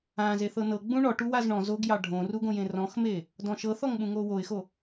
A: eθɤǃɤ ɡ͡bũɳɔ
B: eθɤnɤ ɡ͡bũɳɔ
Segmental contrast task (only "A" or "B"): B